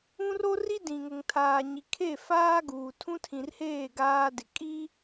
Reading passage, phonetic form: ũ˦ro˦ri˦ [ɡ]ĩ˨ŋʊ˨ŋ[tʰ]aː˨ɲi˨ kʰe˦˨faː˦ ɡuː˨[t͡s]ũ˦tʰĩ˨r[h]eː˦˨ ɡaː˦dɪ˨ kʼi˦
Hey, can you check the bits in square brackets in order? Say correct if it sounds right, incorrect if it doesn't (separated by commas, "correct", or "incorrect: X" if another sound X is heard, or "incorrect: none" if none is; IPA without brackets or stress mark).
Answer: incorrect: d, correct, incorrect: tʰ, correct